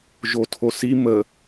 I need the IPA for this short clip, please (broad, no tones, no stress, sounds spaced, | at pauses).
ʒ o tʰ o s i m ə